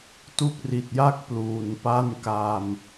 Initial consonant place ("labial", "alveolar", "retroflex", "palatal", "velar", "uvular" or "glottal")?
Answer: alveolar